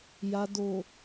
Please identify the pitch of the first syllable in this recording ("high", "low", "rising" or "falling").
low